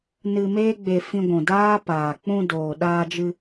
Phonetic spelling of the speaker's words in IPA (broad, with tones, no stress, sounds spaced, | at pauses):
n ɨ˧ m eː˦ ɡ͡b e˧ f ĩ˧ ɡʷ ũ˨ d aː˦ p aː˨ k͡p ũ˧ d oː˨ ɗ aː˧ d͡ʒ ɨ˧